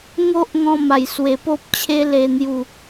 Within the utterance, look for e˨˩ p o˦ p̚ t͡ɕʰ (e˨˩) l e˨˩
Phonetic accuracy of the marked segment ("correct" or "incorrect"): incorrect